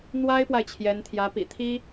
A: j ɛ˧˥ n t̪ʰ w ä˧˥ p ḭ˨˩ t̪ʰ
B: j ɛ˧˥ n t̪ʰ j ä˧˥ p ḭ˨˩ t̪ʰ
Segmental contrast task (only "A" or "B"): B